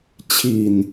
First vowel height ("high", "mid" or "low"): high